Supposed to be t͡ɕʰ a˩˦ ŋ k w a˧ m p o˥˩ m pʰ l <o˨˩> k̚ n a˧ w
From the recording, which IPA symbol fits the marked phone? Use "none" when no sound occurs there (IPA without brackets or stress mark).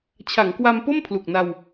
u˨˩